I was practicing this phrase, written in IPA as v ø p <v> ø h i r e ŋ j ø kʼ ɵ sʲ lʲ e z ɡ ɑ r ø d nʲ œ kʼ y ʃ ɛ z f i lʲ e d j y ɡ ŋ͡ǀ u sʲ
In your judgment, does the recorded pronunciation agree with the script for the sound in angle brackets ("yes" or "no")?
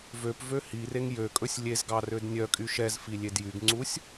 yes